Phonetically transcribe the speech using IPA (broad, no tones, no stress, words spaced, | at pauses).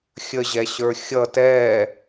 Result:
xʲəʑɛɕə˞ xʲʌ tɛː